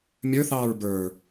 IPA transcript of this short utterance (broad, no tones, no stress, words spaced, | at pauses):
mʲə˞θɑːɹ bə˞